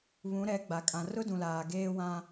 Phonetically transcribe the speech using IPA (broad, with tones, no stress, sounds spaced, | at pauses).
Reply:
β ũ˨˦ ɾ ɛ˨˦ ɡ͡b a˨ kʼ ã˨ r ʊ˦ d ũ˨ l aː˨ ɡ eː˦ w ã˦